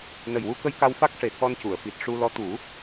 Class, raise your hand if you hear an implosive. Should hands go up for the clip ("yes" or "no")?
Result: no